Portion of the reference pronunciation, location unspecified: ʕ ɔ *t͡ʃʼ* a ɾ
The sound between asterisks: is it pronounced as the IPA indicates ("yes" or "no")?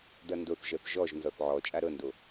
yes